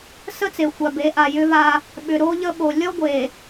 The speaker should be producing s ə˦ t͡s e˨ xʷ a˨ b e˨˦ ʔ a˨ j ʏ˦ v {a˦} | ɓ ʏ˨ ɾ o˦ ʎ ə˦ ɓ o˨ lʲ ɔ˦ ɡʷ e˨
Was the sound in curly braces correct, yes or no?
yes